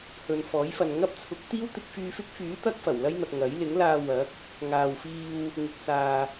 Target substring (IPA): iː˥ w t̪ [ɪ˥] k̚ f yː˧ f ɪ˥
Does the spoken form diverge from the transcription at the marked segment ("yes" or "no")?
yes